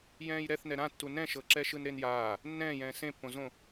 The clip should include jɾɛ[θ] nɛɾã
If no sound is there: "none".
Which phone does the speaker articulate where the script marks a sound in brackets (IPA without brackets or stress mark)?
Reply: θ